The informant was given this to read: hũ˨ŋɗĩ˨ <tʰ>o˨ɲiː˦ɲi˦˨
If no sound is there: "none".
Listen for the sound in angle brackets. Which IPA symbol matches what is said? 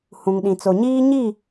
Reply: t͡s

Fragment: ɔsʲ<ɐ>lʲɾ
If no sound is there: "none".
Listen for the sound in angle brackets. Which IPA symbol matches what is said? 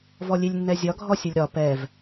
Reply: ɐ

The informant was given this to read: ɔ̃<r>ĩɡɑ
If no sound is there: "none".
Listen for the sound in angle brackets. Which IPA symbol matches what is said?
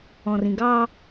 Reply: r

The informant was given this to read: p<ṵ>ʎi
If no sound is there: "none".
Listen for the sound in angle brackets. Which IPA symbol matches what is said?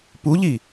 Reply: u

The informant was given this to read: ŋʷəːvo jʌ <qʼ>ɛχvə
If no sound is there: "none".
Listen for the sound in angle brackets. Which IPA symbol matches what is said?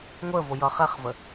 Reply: χ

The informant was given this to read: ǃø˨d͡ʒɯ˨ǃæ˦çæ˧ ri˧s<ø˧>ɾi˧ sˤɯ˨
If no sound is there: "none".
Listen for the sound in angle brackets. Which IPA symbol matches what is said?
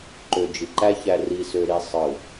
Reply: ø˧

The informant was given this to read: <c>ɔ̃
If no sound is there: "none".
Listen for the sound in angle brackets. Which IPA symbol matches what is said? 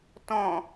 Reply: t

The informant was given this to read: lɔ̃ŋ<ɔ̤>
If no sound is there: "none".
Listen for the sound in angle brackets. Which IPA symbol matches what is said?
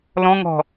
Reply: ɔ̤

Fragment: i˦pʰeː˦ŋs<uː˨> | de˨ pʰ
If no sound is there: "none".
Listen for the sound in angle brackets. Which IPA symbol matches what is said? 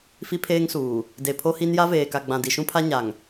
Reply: uː˨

